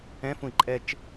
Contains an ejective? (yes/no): yes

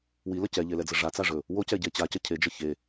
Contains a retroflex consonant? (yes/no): yes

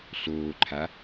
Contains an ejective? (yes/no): no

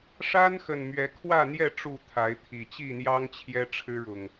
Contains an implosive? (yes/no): no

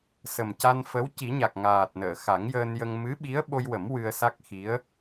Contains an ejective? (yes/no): no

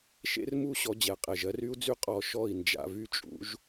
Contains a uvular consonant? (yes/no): yes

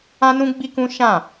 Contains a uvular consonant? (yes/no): no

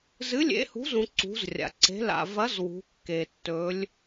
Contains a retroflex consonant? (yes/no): no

